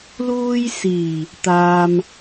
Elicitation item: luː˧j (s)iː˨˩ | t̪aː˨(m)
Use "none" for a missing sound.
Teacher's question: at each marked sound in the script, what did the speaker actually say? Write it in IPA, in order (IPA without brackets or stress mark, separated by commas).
s, m